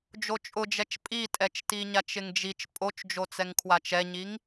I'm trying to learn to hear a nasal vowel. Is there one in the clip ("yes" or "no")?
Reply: no